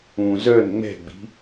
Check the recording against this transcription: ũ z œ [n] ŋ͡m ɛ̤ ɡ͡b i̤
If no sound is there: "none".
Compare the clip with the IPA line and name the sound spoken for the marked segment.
n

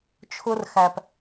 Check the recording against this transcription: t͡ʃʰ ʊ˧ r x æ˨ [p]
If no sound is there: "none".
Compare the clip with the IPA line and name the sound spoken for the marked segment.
p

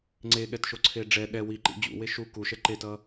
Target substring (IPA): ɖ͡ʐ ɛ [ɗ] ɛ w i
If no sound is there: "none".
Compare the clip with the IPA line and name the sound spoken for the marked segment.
ɗ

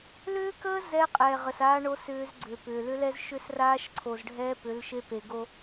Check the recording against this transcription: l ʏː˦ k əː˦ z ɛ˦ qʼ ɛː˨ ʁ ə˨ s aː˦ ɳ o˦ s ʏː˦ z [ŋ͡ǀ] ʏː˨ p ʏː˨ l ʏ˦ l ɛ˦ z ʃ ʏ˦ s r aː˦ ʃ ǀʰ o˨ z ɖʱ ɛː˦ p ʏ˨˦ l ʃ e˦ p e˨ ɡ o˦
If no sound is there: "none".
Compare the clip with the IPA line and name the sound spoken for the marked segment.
ɡ͡ǀ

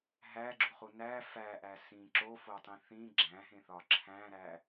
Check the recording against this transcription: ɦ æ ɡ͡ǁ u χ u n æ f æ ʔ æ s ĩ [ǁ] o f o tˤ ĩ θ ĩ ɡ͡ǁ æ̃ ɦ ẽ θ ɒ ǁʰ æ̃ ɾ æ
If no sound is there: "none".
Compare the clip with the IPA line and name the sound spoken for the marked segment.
ǁ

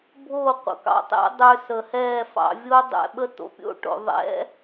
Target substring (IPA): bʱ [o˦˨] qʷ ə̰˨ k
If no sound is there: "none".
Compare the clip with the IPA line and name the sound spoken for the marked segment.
o˦˨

